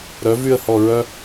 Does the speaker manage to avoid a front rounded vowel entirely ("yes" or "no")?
no